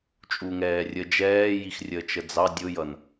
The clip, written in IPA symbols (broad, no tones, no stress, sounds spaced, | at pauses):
t͡ʃʼ u ŋ ɛː rʲ ə d͡ʒ ɛː j i x rʲ əː t͡ʃ ə d͡z ɑ dʲ ʊ j ʌ n